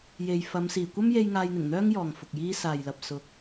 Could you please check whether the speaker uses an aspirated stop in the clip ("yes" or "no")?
no